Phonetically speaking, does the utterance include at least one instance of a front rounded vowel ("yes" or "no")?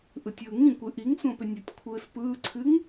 yes